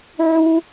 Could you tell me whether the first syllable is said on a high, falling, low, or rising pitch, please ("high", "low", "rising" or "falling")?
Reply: high